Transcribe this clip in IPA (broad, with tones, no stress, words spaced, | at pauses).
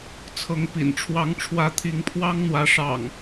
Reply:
t͡sʰɤ˨˦ŋ pḭ˨˩nʈ͡ʂʰwɑ˨˦ŋʈ͡ʂʰwä˨˦ t̪ʰi˨˦ŋpʰwɑ˦ŋn̪wä˨˦ ʂɑ̰˨˩ŋ